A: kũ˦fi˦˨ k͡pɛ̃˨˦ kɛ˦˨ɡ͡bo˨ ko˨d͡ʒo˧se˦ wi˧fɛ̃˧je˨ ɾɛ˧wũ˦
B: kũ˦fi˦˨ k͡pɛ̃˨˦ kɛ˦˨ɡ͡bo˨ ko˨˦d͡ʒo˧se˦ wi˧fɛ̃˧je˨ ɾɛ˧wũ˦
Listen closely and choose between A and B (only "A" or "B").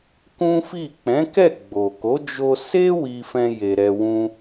B